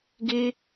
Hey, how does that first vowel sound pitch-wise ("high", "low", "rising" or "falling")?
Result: high